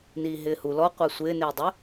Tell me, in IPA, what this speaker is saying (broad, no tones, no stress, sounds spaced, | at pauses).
n iː ɦ ɪː h u l ɔ qʷ a sʷ ɪː n ɪː dˤ ɪ